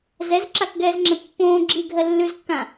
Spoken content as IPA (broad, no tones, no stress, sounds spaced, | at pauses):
z ɛ z ǁ a k ɡ ɛː z ŋ͡ǁ ɛ̃ pː õː ɡ͡ǁ i ɡʱ ɜ lː ʉ z kː ã